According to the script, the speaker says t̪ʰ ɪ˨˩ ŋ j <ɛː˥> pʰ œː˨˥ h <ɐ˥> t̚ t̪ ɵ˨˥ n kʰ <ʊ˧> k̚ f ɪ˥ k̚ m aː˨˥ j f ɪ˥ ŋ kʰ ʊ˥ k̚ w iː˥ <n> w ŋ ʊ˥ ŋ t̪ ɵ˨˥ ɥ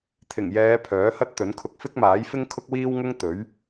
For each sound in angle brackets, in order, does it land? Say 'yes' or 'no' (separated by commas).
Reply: no, yes, yes, no